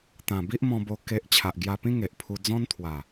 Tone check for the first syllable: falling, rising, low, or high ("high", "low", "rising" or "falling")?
low